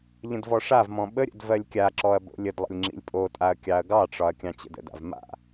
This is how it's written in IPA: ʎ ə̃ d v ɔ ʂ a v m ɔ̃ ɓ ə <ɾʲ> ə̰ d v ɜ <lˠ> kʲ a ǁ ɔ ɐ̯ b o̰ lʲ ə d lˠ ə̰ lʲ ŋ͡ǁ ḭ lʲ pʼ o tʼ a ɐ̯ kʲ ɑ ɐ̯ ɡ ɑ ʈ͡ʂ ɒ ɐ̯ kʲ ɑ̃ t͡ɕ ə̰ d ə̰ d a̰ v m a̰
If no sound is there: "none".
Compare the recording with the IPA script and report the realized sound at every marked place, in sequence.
ɾʲ, lʲ

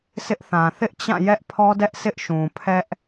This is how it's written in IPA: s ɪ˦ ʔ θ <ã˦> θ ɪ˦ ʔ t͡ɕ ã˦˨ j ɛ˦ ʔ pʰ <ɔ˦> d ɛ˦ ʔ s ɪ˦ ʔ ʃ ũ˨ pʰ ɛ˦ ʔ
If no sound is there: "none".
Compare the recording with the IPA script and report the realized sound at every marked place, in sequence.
ã˨, ɔ˦

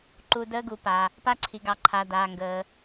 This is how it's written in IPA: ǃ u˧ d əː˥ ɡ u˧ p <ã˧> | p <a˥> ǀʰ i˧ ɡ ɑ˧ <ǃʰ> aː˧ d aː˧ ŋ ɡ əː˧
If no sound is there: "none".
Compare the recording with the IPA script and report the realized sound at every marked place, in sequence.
a˧, a˥, ǃʰ

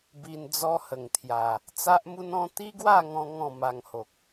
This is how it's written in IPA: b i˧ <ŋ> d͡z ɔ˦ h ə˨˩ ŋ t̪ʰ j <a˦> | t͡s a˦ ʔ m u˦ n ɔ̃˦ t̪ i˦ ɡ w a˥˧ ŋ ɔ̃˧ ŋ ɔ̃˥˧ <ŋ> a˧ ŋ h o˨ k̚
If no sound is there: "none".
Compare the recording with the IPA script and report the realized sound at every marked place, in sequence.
n, a˨˩, m

